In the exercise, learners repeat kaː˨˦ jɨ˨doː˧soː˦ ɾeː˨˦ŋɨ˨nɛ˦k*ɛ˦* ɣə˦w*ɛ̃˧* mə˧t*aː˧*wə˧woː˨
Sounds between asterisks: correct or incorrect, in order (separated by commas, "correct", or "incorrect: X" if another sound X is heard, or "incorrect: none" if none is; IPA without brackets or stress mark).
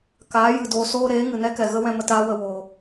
incorrect: ɛ˨, correct, incorrect: aː˦